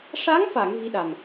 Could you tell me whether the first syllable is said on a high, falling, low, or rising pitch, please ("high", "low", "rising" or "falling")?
rising